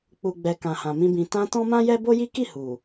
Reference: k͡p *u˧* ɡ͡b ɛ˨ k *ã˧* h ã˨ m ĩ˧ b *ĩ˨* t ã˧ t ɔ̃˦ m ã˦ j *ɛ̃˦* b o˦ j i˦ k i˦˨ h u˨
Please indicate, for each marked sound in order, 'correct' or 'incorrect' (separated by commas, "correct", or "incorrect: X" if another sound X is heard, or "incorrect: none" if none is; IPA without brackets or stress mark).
incorrect: u˨, incorrect: ã˨, correct, incorrect: ɛ˦